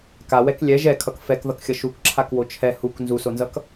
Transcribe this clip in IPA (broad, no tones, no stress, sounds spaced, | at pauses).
k a w ɛ k lʲ ɛ ʒ ɛ kʰ ʌ k f ɛ k ð ʌ k xʲ ʌ ʃ u k ǁʰ a k w o t͡ʃʰ ɛ h u k n z u s o n z ʌ k